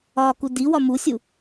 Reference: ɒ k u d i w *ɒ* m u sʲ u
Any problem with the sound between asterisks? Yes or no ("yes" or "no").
no